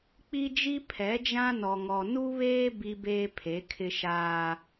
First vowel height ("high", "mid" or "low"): high